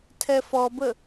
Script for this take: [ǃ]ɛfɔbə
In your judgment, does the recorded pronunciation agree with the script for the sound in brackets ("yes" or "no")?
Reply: no